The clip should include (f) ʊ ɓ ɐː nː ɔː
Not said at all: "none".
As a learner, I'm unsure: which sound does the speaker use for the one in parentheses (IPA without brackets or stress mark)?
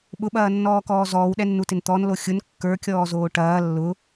ɓ